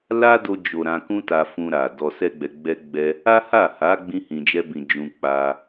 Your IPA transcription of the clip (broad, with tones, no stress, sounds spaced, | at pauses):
l a˦ d o˧ d͡ʒ o˨ ɾ ã˧ k ũ˦ t a˧ f ũ˧ ɾ a˨ d ɔ˧ s ɛ˦ ɡ͡b ɛ˧ ɡ͡b ɛ˦ ɡ͡b ɛ˦ | a˦ h a˦˨ h a˨˦ ɡ͡b ĩ˦ h ĩ˧ d͡ʒ ɛ˦ b ĩ˧ d͡ʒ ũ˧ k͡p a˧